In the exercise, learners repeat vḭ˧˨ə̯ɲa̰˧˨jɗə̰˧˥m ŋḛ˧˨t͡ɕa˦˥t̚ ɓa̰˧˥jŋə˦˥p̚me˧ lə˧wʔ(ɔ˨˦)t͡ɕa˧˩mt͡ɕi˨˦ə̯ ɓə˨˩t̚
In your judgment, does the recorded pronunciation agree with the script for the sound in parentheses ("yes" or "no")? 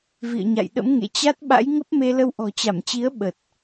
no